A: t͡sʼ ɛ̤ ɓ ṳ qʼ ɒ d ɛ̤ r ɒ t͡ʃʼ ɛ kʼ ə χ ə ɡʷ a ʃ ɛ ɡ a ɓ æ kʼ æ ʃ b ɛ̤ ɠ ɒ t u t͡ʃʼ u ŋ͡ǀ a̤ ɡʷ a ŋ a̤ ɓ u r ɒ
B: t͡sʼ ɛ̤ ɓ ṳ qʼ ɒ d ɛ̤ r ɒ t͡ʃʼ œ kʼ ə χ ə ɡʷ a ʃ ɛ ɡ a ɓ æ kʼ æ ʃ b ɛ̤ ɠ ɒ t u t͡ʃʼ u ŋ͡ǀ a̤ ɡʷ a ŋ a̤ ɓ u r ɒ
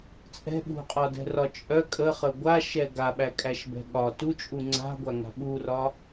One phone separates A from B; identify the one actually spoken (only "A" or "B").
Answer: B